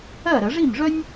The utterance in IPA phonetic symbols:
ɜ˥˩ ɾ ə˧˩˧ ʐ i˥˩ m ʐ œ˥ nʲ

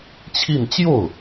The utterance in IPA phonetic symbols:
t͡ɕʰ i˥˧ n t͡ɕ j o˥˩ ʊ̯

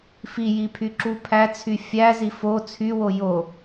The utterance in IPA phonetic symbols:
f i j i pʰ y ǁ u pʰ æ t͡sʰ y fʲ æ z i f o t͡sʰ y w o j o

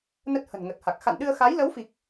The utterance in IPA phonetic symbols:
n ə˦˥ t̚ h ə̤˨˩ n ŋ ə˨˩ t̚ h a˨˩ k̚ x a̰˧˨ n ɗ ɨ˧ ə̯ x a˨˦ j l ə˨˦ w f i˨˩ k̚

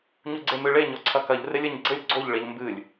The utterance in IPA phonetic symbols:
ɲ u ɡ͡ǀ e m ɨ ɭ e ɲ ɔ ǀʰ ɐ k ɐ ʎ r e lʲ ɘ ɲ ɡ͡ǀ ɘ lʲ ɡ͡ǀ o ʎ ɭ e ʎ m b ɨ lʲ

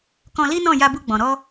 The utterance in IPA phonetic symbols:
k ɔ̃˧ l i˦ n ɔ̃˦˨ j a˧ b u˧ ɡ͡b ɔ̃˨ ɾ ɔ˧

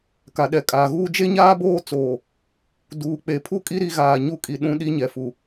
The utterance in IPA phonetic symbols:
k a˨ ɗ ɛ˨ kʼ aː˨ ɣ uː˦ d͡ʒ e˦ ɲ aː˦ b oː˦ t͡s oː˨ | d uː˨ k͡p e˨ pʰ u˦˨ kʼ i˦ ɾ i˦ ɣ aː˨ ɲ u˦ kʼ i˨ ɗ ũ˦ ɗ i˦ ɲ ɛ˨ f u˨

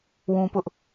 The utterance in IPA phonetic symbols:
w ũ˦ p ʊ˦ ʔ

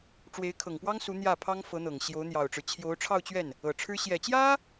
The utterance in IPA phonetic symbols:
ʈ͡ʂ w e˧˥ ɪ̯ kʰ ɤ˨˩ ŋ p w ɑ˥ ŋ s u˧˥ n̪ j ä˥˩ pʰ ɑ˥ ŋ f ɤ˧˥ n̪ ɤ˨˩ ŋ ɕ j o˧˥ ʊ̯ n̪ j ɑ˨˩ ʊ̯ ʈ͡ʂ ɻ̩˦ t͡ɕʰ j o˧˥ ʊ̯ ʈ͡ʂʰ ɑ˥˧ ʊ̯ t͡ɕ ɥ ɛ˥˩ n | ɤ˨˩ ʈ͡ʂʰ ɻ̩˥ ɕ j ɛ˨˩ t͡ɕ j ä˥

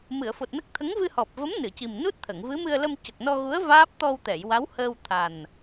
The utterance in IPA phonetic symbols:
m ɨ˨˩˨ ə̯ f o˨˩ t̚ n ə˦˥ k̚ t̪ʰ ə˧˥ ŋ v ɨ˧ h ɔ˨˩ p̚ v ə˧˥ m n ɨ˨˩˨ c i˨˩ m n u˦˥ t̚ t̪ʰ ə˨˩˨ ŋ v ɨ˧˥ m ɨ˧ ə̯ l ə˧ m c ə˨˩ k̚ n ɔ˧ ɣ u˧˥ ə̯ v aː˦˥ p̚ t̪ ɔ˧ w t̪ ɛ˨˩˨ j w a˧˥ w h əː˧ w t̪ʰ a˨˩ n

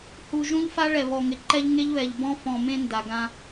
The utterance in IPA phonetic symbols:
h u˨ ʒ ũ˦ ʎ f a˦ ɭ ɛ˨ β ɔ˨ ŋ ɪ˨ ǃ ɛ˦ ʎ ŋ e˦ ʎ β ɛ˨ ʎ b ɔ̃˦ f ɔ̃˨ m ẽ˦ n d a˨ ɡ ã˦

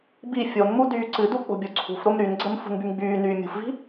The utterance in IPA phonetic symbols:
b i fʲ o n m u d yː ǀ ɨ d u k͡p o̤ bʲ o ǀʰ ṳ f ɾ o m ɾ y n ɡ͡ǀ ə m f ṳ n b y m ɡ͡b yː n yː mʲ ṳ f v i̤

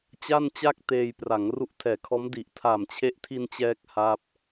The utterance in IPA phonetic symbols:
t͡ɕ a˥˩ n t͡ɕ a˥˩ k̚ t eː˧ j p r a˩˦ ŋ r u˦˥ ʔ tʰ ɛː˨˩ kʰ ɔː˦˥ m d i˨˩ ʔ tʰ a˨˩ m t͡ɕʰ e˦˥ ʔ tʰ i˧ n t͡ɕ ɛː˥˩ k̚ h a˥˩ p̚

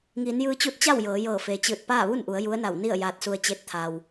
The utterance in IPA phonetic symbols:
ŋ iː˩˧ n j ɯː˧ t͡ɕ u˧˥ t̚ t͡ɕ a˥˨ w j ɤː˩˧ j ɤː˧˩ f e˩ t͡ɕ ɯː˧˩ t̚ p aː˥˨ ʋ u˥˨ n ʔ u˩˧ ə̯ j u˧˥ ə̯ n a˧˩ w n i˥˨ ə̯ j aː˧ t̚ s u˧ ə̯ t͡ɕ e˧˥ t̚ t̪ʰ a˩ w

